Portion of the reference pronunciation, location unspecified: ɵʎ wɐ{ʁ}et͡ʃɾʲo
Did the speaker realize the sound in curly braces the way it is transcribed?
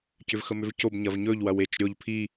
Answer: no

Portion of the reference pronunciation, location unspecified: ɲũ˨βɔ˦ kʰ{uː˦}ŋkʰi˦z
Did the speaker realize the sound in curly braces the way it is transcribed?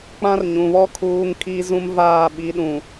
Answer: yes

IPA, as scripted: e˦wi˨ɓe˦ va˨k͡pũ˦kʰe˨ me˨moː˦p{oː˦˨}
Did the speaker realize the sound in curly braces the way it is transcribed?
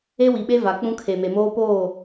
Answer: yes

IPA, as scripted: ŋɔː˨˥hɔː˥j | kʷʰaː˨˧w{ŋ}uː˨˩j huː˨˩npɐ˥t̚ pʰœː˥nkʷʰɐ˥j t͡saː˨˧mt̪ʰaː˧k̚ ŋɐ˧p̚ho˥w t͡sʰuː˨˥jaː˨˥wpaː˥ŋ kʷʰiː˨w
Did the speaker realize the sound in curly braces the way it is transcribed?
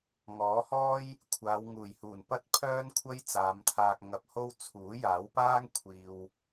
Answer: yes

